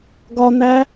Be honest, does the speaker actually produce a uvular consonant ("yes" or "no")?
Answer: no